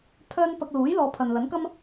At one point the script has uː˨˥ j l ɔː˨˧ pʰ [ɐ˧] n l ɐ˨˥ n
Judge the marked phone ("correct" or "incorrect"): incorrect